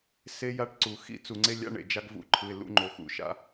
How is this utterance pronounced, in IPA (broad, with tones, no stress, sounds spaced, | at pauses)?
s e˦ j a˦ ʈ ǀ u˨ x ḭ˦ t͡s u˨ ŋ͡ǀ e˦ lʲ a̰˦ ɳ ḛ˨ d͡ʒ a˦ ɡ v ṵ˦ ǃʰ ɯ˨ ɪ̯ l ṵ˨˦ ŋ͡ǃ o˨ x ṵ˨ ʃ a̰˦